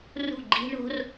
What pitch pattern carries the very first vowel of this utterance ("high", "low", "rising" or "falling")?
falling